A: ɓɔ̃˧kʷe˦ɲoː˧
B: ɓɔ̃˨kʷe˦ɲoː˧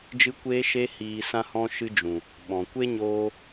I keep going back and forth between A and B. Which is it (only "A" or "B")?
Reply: B